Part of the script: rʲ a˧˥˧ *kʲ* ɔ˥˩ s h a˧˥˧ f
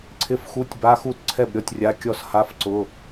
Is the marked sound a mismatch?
no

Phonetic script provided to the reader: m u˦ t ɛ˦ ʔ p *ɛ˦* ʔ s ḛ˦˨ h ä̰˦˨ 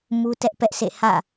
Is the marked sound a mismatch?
no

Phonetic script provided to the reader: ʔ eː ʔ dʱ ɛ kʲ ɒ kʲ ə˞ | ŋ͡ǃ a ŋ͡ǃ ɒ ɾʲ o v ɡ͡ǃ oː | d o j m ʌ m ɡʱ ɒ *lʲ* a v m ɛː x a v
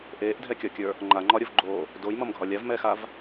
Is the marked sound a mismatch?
no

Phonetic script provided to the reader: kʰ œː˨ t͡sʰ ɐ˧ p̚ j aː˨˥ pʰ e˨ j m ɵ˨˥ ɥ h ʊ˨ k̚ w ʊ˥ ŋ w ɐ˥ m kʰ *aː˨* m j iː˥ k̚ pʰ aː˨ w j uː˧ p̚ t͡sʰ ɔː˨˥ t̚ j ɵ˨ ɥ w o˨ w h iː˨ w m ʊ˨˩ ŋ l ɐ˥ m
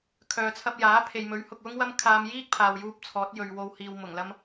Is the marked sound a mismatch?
yes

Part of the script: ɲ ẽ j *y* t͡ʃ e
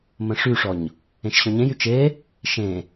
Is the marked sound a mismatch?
no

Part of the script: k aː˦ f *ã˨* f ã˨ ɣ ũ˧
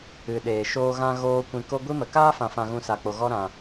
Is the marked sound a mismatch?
no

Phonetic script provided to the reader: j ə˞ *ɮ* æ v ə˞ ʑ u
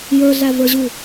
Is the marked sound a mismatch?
no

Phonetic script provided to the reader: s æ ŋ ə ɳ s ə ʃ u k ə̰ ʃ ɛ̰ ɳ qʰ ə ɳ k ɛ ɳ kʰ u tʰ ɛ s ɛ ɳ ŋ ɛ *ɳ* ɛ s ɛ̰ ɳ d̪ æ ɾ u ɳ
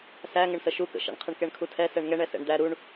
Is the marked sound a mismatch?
no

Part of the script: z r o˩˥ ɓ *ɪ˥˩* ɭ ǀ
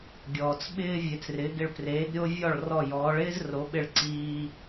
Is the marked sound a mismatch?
no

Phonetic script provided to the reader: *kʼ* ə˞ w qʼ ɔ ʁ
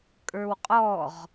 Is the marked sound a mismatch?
no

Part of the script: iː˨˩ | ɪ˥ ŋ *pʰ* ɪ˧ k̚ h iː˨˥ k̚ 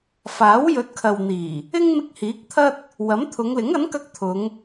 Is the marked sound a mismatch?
yes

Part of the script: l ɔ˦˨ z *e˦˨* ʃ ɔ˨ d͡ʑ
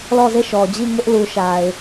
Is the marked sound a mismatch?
no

